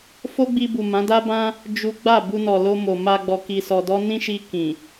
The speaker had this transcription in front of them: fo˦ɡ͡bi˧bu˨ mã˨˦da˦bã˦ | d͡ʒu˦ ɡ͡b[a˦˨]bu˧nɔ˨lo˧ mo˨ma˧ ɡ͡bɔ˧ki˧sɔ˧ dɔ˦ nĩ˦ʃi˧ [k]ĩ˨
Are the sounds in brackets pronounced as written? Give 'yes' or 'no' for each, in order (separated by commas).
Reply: yes, yes